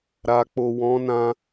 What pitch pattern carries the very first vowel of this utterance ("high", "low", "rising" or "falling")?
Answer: low